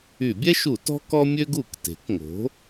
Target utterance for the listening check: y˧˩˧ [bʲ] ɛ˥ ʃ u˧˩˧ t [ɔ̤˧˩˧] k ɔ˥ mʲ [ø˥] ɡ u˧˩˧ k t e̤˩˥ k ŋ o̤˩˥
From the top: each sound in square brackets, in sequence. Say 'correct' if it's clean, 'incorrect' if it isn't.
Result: correct, incorrect, correct

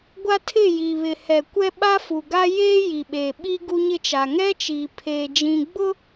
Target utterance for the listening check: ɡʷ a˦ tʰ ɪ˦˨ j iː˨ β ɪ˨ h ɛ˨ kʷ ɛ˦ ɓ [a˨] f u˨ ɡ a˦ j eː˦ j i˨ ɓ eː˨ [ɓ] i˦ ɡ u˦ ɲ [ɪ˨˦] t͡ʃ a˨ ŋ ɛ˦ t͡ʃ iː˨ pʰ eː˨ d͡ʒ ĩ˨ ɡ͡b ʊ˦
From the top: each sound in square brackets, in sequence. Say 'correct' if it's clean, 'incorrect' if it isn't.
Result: incorrect, correct, incorrect

